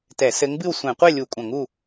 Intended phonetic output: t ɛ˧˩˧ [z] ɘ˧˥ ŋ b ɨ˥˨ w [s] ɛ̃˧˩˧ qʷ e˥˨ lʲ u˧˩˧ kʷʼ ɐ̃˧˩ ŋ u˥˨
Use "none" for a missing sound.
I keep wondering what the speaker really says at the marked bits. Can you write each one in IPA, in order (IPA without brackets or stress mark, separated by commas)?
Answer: s, sʷ